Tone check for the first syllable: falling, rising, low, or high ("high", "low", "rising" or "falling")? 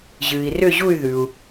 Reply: low